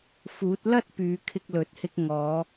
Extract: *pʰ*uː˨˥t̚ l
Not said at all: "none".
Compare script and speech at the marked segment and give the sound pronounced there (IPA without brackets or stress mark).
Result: f